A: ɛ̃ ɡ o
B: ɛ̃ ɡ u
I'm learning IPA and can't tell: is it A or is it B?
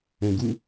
B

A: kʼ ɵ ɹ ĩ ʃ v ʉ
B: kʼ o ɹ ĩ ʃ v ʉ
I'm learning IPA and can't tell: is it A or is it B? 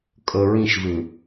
A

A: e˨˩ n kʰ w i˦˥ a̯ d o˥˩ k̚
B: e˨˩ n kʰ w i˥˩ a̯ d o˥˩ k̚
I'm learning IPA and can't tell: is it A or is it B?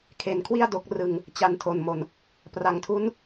B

